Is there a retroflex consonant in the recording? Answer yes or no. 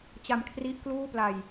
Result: no